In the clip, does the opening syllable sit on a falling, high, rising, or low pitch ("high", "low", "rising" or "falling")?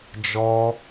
high